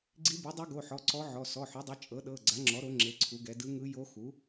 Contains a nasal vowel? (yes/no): no